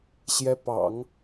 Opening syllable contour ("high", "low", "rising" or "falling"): rising